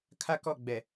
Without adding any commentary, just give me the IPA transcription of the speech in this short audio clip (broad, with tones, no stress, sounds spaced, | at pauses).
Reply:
kʰ a˦ k ɔ˦˨ ɡ͡b ɛ˨